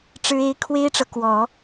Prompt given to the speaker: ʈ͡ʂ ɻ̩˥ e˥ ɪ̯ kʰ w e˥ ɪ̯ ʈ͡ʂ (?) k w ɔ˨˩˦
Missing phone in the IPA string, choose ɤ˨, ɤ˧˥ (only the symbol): ɤ˨